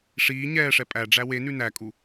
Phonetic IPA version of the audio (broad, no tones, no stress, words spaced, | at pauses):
ʂiː ɲɛːʂɛ pʼæɖ͡ʐæ we nʉnækʼu